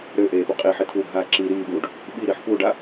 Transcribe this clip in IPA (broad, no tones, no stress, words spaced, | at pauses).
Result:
ɾøʔeːpʉ qʼiħit̪ʰuːɡʱaː ǁi ɾiːɓuːɖ | ɓiɾiħ puɖa